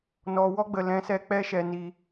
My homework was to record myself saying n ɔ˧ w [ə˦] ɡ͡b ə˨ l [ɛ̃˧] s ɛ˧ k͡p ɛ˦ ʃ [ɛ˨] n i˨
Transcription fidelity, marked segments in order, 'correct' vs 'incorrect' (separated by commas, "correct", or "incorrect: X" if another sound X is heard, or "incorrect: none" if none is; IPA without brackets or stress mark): incorrect: ɔ˦, correct, correct